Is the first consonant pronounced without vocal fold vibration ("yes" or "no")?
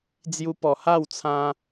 no